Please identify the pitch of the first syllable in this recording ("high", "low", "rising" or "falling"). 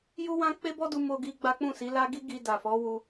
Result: high